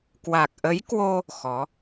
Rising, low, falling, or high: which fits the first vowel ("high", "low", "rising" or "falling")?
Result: low